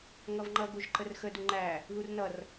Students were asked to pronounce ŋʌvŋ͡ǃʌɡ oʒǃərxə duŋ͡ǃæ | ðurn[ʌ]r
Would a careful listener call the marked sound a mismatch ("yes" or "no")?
no